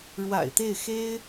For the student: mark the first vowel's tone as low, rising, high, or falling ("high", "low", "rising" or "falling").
low